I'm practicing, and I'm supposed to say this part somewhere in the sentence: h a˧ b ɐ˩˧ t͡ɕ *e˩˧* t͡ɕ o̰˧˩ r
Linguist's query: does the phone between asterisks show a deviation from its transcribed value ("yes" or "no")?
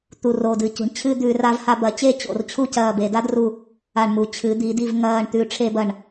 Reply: yes